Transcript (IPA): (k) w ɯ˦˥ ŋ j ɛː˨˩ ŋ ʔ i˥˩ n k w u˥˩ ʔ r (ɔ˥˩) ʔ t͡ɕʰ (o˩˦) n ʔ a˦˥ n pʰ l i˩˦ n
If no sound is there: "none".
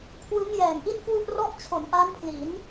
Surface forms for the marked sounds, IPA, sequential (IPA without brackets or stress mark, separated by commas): kʰ, ɔ˥˩, o˩˦